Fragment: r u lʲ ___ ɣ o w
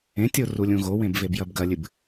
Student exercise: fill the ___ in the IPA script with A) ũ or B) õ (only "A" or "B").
A